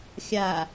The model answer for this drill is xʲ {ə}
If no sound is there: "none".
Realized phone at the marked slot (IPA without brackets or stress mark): a